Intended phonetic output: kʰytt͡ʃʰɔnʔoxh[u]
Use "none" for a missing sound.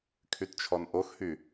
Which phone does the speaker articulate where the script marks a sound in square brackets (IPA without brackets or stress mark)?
y